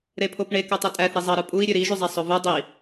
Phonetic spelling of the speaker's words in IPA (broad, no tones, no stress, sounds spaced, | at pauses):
ɾ e pʰ o p ɳ e k ø tˤ e tʼ æ θ ɾ i zˤ ɑ ɾ ɯ pʼ u i̯ ɾʲ ø ɾ i ʒ y zˤ æ sˤ o v u dˤ i